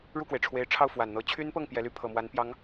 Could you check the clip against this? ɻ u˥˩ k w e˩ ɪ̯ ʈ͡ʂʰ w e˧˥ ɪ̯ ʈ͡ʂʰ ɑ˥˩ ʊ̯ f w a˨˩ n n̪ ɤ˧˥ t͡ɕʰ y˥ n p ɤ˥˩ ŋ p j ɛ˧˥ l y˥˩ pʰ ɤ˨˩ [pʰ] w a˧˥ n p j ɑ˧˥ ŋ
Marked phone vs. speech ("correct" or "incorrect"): incorrect